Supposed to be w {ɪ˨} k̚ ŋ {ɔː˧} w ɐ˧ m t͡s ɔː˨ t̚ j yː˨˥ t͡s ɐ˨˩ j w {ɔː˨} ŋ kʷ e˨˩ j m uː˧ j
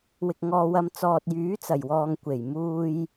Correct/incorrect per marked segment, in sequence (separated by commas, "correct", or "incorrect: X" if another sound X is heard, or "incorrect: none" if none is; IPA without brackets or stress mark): incorrect: ɪ˧, correct, correct